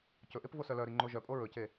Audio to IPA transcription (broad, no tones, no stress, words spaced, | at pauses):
cɵʔep vosœlœɾi ŋ͡ǃoʒœpʼo ɹɵce